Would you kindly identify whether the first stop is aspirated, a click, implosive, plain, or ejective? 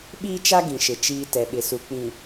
implosive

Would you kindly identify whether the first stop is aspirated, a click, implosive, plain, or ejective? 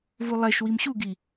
plain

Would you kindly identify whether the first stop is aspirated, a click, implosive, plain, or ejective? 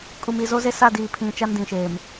ejective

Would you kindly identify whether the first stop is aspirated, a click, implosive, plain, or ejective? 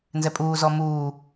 ejective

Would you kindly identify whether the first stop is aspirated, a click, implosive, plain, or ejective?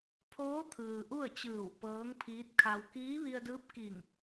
aspirated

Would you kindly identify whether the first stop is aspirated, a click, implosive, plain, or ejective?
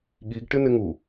implosive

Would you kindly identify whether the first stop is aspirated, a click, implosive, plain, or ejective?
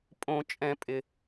ejective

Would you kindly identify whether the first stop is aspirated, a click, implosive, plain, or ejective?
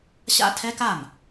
aspirated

